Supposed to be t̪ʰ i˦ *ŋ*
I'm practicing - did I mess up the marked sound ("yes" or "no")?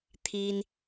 yes